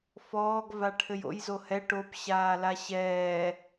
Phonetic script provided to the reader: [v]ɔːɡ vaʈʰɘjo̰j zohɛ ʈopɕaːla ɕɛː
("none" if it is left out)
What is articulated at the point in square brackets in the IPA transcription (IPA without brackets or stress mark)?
f